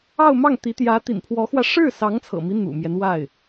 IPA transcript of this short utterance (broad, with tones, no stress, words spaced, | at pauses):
ɑ˥˧ʊ̯mɑ˥˩ŋt̪i˧˥ t̪jä˧˥t̪ḭ˨˩npʰwɔ˧˥xwä˧ ʂɻ̩˥˩sɑ˧˥ŋt͡sʰɤ̰˨˩mi˦ n̪ṵ˨˩mjɛ˦n wa˥˩ɪ̯